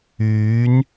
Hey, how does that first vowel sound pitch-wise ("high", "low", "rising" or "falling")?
rising